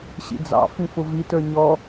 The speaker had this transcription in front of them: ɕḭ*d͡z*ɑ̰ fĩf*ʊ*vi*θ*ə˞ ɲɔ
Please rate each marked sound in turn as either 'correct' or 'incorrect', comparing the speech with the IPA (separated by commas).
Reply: correct, correct, incorrect